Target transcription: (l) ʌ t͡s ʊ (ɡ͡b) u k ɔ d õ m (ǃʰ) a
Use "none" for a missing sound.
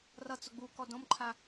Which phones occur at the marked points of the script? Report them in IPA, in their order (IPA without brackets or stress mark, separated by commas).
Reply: r, ɡ͡b, ǃʰ